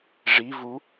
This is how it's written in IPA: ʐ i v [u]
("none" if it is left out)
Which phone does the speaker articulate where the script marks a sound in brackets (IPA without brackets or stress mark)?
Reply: u